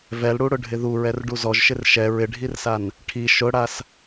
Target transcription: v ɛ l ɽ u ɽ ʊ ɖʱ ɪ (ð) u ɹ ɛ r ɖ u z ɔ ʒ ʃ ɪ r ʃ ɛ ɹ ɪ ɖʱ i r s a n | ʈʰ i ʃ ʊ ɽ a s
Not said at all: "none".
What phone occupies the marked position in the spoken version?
ð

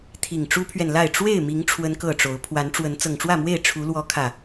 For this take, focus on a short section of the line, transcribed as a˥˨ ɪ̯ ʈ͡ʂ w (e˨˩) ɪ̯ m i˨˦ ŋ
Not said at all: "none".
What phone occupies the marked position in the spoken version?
e˥˨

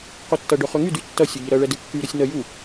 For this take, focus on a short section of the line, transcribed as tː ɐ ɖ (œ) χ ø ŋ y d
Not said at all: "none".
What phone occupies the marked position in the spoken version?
œ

